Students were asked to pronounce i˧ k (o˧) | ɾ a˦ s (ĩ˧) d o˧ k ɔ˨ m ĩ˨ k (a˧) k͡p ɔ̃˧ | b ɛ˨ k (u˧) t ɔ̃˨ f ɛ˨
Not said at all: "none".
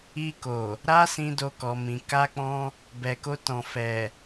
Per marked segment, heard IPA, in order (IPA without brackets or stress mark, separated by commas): o˨, ĩ˧, a˧, o˧